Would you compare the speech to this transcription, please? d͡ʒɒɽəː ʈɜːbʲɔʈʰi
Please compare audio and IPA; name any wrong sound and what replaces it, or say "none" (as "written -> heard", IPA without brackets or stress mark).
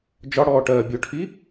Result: əː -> ɔː